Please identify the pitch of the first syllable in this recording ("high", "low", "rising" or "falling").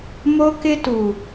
high